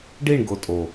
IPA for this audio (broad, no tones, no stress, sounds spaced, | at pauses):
ɖ i ɳ ɡ o tʼ o